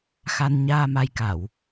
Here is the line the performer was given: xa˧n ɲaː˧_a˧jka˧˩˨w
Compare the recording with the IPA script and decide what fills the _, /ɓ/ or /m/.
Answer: m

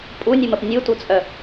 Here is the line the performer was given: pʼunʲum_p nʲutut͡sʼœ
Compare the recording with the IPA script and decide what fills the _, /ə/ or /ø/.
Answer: ə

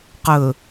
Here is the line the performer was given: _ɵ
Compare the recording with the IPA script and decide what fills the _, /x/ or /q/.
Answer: q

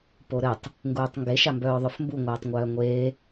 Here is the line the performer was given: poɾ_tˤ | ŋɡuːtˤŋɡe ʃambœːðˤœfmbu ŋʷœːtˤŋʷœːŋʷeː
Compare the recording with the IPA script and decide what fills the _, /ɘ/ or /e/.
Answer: ɘ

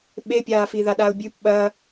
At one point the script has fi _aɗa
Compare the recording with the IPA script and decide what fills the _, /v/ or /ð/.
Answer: ð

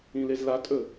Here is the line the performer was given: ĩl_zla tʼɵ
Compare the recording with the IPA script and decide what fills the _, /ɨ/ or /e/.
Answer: e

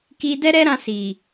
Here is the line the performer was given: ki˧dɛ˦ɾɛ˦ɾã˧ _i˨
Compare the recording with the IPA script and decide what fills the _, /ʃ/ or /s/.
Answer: s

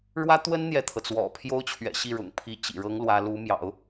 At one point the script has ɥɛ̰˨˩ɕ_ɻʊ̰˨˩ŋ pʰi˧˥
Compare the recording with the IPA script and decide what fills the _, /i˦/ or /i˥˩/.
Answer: i˥˩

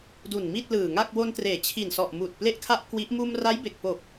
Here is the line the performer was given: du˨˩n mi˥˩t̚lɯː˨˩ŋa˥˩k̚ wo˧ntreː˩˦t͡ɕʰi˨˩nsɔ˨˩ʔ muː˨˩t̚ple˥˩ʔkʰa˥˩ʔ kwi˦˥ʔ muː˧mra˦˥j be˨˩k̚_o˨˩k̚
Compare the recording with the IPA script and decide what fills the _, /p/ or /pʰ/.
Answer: p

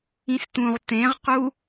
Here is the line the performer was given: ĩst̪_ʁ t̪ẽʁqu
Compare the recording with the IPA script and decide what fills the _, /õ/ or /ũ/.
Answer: ũ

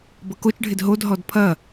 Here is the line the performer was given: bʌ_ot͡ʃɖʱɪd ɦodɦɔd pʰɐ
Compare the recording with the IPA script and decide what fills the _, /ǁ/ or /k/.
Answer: k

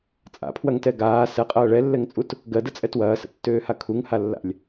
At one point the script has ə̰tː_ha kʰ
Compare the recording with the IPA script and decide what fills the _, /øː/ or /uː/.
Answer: øː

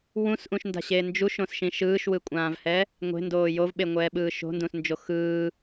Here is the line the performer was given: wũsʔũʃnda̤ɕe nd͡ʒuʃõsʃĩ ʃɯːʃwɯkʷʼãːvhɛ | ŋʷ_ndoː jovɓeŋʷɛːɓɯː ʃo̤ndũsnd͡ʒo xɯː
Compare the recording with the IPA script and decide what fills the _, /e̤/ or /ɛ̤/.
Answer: e̤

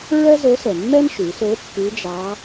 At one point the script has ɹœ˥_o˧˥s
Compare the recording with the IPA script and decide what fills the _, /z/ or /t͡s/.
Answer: z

